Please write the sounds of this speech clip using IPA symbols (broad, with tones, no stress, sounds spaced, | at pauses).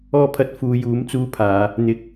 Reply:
ɔː˧ pʰ ɐ˨˥ t̚ f uː˨˧ j uː˨˥ m t͡s uː˧ pʰ aː˨˧ | n̪ ɪ˨˥ k̚